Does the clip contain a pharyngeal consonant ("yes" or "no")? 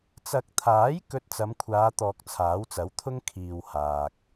no